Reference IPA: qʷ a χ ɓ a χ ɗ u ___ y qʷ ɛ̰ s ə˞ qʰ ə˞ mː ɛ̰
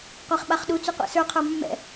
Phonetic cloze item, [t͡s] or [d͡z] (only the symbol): t͡s